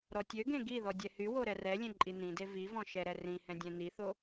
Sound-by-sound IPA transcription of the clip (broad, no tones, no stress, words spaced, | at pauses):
ɾɔtʲøɡẽ ɡiðɔ dʲɛhywo ɾɛrɛlʲẽ ǃʼinĩde vivɔ̃ ʃɛɾɛrĩhɛ̃ dʲɛ̃niθo